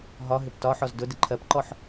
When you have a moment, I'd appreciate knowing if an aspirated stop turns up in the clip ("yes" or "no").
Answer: yes